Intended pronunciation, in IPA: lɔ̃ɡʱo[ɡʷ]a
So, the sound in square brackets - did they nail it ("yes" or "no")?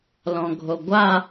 yes